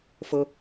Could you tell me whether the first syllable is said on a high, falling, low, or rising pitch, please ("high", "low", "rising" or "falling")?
high